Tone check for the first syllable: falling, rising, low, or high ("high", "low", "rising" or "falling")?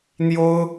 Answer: high